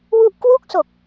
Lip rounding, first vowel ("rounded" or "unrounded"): rounded